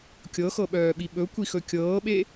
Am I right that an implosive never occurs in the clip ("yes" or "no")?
no